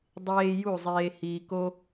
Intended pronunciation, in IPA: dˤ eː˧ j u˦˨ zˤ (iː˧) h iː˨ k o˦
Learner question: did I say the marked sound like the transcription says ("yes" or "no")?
no